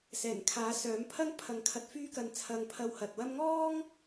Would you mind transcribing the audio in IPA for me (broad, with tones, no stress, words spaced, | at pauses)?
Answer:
sɛː˨˩nkʰaː˨˥ sœː˨˥m pʰɐ˥ŋpʰɐ˨˥ŋkʰɐ˨˥t̚ fyː˥kɐ˧nt͡sʰɐ˧ŋpʰɐ˧w hɐ˨t̚wɐ˥m ŋɔː˥ŋ